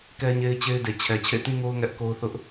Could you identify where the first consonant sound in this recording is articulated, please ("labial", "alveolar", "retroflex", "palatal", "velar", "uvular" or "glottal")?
velar